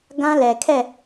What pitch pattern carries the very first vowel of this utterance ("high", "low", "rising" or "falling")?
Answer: high